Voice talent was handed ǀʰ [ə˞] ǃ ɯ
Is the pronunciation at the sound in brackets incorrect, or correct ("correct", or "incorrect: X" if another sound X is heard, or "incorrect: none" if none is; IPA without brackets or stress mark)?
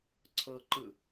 incorrect: ɤ